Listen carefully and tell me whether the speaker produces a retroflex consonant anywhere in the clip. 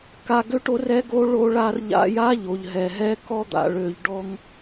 yes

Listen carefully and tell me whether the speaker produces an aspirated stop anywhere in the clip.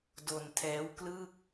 yes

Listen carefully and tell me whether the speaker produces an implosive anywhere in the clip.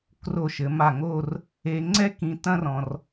no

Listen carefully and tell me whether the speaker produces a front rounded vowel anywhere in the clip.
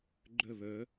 yes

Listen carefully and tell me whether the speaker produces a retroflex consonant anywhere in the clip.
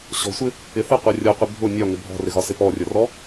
no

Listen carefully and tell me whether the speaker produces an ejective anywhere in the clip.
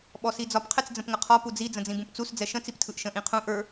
no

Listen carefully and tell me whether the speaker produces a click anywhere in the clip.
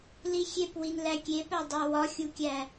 no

